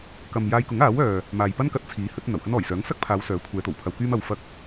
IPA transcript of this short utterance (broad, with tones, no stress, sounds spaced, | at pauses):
k ɐ˨ m j aː˧ j k ʊ˨˥ ŋ aː˨˥ w œː˨ | m aː˨ j p ɐ˥ n k ɐ˨˥ t̚ t͡sʰ iː˨˥ h ɵ˨˥ t̚ n̪ ɐ˨˩ w h ɐ˥ n ɔː˨˩ j s œː˨˥ ŋ s ɐ˥ k̚ pʰ aː˨˧ w s œː˨˥ kʷʰ ɛː˨˧ t̪ o˨˩ w pʰ ɐ˧ w k yː˥ m ɐ˧ w f ɐ˥ k̚